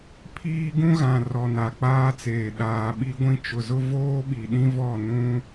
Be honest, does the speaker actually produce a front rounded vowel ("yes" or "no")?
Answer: no